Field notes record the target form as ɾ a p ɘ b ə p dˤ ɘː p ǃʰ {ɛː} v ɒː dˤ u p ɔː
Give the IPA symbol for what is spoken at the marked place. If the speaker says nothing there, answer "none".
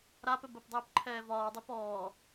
ɛː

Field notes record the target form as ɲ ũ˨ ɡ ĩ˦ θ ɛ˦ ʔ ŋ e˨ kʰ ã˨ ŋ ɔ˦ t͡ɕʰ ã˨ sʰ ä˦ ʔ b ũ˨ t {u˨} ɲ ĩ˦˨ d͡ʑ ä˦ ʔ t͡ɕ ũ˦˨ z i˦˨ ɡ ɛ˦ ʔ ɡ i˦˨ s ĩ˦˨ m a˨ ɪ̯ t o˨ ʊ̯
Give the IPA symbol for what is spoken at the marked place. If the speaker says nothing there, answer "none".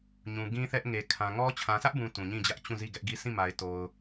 ũ˨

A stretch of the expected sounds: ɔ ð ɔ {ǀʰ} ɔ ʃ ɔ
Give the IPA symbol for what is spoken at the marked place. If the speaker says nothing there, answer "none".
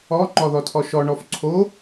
tʰ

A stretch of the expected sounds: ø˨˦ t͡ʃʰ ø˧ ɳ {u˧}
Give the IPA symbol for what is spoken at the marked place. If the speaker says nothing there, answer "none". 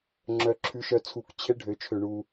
u˧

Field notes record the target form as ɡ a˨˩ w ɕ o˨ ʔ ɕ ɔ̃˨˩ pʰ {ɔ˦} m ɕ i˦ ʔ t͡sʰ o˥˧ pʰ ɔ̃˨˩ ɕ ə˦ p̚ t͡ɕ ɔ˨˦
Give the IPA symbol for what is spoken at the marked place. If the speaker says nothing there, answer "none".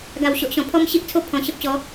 ɔ˦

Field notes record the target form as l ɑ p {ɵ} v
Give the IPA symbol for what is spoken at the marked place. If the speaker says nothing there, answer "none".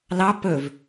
ɵ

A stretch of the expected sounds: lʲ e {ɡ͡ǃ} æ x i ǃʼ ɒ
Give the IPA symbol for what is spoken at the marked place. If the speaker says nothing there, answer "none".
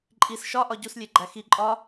ɡ͡ǃ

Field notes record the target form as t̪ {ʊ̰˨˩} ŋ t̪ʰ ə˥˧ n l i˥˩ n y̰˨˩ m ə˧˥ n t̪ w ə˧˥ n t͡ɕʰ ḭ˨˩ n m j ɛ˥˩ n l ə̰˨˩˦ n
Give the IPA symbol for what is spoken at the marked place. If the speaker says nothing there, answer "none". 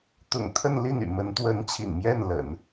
ʊ̰˨˩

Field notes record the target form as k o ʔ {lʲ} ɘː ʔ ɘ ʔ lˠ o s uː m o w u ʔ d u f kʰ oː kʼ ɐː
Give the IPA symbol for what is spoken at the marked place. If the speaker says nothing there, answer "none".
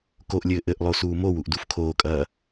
lʲ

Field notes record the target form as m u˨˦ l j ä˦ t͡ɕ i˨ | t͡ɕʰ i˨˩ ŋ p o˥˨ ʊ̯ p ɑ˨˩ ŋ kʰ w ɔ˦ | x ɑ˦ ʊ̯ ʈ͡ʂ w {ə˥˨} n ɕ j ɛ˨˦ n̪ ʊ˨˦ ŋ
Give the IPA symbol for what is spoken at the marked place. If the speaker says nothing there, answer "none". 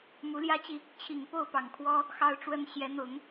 ə˦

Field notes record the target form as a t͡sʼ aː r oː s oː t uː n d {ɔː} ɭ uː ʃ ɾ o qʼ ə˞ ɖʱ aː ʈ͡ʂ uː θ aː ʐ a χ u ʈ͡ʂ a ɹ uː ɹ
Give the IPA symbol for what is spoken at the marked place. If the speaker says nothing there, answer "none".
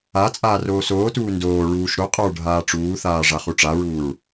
oː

